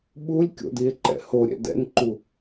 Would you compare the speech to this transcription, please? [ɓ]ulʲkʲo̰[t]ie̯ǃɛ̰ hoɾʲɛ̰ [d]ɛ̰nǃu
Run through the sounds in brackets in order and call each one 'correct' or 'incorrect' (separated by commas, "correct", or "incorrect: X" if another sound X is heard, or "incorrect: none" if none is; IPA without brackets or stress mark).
correct, incorrect: d, correct